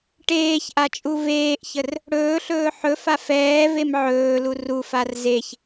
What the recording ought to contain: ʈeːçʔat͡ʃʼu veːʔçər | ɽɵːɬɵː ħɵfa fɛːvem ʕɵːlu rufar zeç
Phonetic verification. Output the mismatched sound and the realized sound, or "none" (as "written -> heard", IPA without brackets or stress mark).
none